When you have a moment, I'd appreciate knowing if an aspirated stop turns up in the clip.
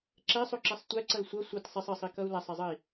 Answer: no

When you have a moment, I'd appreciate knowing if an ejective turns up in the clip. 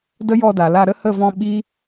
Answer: no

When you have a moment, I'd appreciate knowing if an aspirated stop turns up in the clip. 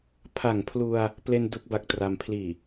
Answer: yes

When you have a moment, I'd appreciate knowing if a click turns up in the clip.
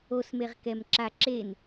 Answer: yes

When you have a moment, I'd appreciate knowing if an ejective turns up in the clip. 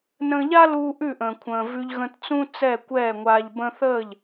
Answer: no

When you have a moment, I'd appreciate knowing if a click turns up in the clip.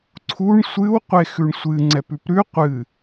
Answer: yes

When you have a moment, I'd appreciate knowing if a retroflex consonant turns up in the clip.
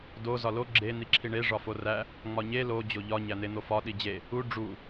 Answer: yes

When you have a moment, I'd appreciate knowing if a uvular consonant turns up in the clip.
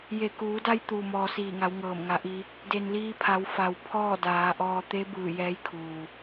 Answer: no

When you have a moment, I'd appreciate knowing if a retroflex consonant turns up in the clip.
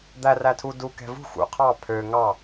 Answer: no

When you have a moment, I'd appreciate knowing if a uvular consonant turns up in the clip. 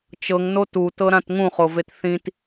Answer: yes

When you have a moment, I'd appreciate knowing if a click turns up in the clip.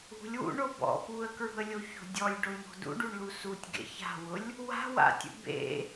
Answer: no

